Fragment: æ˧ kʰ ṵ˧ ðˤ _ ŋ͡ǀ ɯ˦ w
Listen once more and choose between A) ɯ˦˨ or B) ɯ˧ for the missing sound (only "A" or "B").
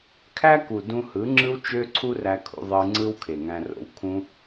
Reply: B